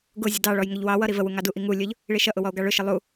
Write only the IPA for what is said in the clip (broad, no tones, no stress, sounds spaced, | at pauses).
ɡ ʊ zʲ ə d ɑ ɭ ɔ j ŋ ʊ ʎ w ɑ w ʌ ɾ i v ə w u ŋ ɑ d u ʔ i ŋ u lʲ ʊ ʎ | ɭ i ʃ ʌ ʔ ʊ w ɔ o̯ ɡ ɑ ɭ ʊ ʃ ə lˠ u